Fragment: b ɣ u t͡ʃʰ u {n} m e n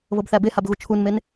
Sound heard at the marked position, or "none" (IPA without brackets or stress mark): n